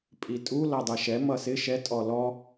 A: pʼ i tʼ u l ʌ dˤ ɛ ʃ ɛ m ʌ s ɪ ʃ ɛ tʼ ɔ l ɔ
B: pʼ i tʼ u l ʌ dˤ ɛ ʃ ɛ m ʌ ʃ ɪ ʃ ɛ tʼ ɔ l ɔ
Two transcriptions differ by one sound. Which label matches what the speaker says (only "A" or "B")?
A